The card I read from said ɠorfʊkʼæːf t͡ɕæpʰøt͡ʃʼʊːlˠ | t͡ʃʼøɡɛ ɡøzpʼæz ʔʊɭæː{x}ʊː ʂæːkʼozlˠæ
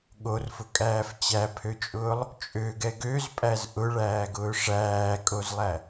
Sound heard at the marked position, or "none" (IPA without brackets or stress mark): ɡ